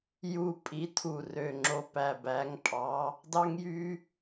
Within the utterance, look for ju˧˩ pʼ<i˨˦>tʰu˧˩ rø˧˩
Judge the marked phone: correct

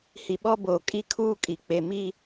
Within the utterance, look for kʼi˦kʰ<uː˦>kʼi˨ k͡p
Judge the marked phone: correct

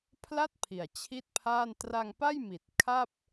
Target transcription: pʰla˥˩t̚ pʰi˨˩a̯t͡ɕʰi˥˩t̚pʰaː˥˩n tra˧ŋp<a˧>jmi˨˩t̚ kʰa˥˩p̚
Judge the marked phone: incorrect: a˥˩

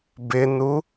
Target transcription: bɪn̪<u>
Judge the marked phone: correct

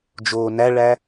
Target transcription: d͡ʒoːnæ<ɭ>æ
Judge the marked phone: correct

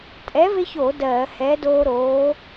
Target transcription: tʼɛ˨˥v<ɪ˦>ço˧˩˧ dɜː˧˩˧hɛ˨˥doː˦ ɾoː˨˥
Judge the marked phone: correct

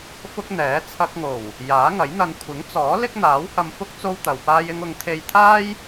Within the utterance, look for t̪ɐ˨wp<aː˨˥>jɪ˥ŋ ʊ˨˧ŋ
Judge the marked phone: incorrect: aː˥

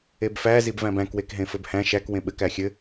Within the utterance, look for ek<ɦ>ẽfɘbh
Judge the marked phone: correct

